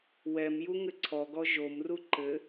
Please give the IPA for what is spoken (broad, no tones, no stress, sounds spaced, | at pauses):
w ɛ m j u ŋ ɘ ǀʰ ɔ ɡ ɔ ʒ o m r u ǃ ɘ